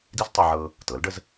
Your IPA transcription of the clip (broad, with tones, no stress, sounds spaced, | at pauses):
d i˥ z tˤ i˧ ʕ ɤ˧ | t ɤ˩˥ l ɖ ə˧ z